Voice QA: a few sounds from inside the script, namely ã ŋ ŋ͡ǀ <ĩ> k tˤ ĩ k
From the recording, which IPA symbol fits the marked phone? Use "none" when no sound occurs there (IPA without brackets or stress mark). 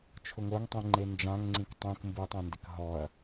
ĩ